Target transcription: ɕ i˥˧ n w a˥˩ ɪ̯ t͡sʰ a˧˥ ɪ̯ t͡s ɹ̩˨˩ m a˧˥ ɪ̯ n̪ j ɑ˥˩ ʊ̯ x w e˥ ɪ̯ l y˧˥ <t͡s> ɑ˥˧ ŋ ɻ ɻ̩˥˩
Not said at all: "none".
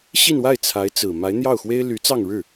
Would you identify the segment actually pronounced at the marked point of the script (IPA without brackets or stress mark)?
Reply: t͡s